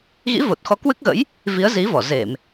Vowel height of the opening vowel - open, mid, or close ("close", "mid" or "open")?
close